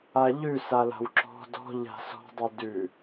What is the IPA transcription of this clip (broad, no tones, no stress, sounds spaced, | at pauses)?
a ʎ ʉ s a l a̤ w ǁ ɔ̤ d ɔ̤ ʎ a̤ s ɔ̤ dˤ ʉ d ʉ